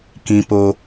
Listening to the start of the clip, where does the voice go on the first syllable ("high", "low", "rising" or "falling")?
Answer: low